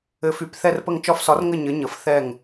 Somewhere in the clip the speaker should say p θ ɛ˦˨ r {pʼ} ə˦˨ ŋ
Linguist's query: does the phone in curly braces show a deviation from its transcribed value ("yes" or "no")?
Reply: yes